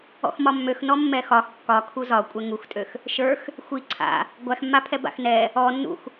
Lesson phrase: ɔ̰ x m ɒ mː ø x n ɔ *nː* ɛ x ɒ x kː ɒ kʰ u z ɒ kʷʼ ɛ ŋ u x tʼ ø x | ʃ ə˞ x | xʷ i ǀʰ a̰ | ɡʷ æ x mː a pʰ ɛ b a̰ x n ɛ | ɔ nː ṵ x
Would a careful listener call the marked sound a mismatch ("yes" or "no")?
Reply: yes